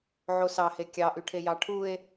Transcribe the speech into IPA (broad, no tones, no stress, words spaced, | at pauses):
ʕosɑhe kʲɑʔyʈʰe jɑʈʰue̯